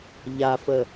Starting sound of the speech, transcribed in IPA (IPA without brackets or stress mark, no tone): ʎ